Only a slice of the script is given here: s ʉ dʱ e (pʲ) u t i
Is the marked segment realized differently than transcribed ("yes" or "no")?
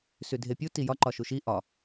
no